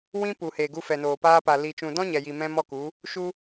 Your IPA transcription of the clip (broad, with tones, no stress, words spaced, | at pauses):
wĩ˦ pu˨ heː˨ɡu˧fɛ˨noː˨ paː˧pa˨ li˨ t͡ʃũ˨dɔ̃˦ ɲɛ˨ji˨ mɛ̃˧mɔ˦˨ku˨˦ | ʃu˧